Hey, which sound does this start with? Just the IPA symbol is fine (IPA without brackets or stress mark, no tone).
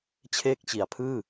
t͡ɕʰ